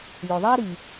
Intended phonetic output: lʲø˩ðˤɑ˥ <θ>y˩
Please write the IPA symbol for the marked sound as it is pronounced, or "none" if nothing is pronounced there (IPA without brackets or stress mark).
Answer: ɾ